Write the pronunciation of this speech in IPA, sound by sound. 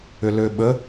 ʏ l ø ɓ ə

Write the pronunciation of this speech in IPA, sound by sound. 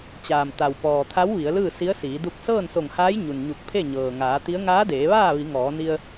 t͡ɕ aː˩ m t̪ a˩ w p ɔː˩ t̪ʰ a˧˥ w ʋ i˩˧ ə̯ l ɯː˥˨ s i˧˥ ə̯ s iː˩˧ d u˧ k̚ s ɤː˥˨ n s o˧˩ ŋ h aː˧˥ j ɲ u˩ n ɲ u˧˩ k̚ pʰ e˥˨ ɲ ɤː˩ ŋ aː˩˧ t̪ i˧˥ ə̯ ŋ aː˧˥ d eː˩˧ ʋ aː˥˨ ʋ i˩˧ ŋ ɔː˩˧ n i˧ ə̯

